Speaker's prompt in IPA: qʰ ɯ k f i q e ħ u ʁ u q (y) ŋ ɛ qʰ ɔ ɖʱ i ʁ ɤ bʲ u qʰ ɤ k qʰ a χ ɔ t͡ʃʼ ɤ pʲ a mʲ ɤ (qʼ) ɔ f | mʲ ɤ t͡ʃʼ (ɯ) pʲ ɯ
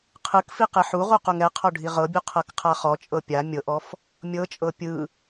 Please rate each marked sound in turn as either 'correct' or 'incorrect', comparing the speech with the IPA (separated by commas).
incorrect, incorrect, incorrect